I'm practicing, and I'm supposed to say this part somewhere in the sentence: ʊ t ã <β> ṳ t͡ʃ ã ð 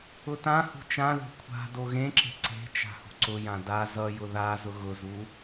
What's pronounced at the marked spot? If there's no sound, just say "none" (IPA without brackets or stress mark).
h